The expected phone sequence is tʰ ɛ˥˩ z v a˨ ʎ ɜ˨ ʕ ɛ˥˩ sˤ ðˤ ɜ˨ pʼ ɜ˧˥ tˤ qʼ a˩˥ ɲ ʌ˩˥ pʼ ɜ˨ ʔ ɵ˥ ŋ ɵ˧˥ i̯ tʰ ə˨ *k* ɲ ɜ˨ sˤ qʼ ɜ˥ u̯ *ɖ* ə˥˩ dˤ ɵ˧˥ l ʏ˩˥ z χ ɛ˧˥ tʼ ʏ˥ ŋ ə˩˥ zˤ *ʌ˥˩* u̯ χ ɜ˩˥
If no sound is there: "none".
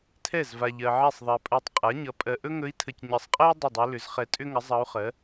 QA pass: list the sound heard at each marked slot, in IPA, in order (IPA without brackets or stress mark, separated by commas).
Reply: c, dˤ, ʌ˧˥